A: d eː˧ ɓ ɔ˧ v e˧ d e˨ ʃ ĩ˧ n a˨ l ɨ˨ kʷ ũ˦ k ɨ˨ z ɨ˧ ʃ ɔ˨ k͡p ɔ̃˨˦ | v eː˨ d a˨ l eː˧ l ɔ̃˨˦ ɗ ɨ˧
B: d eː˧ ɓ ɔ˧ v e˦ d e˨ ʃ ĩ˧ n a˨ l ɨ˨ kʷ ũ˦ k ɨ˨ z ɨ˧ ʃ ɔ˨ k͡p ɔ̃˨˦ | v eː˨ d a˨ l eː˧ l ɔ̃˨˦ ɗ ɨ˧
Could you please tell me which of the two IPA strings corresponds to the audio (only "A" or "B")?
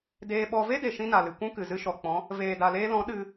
B